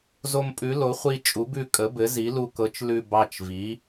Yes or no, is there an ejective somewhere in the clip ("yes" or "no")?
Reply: yes